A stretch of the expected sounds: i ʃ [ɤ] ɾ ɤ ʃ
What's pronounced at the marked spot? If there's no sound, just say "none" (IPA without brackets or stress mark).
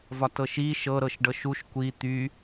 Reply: ɤ